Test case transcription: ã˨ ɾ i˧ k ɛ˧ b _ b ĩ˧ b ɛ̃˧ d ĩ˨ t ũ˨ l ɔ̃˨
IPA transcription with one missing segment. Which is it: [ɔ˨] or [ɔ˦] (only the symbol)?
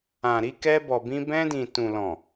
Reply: ɔ˨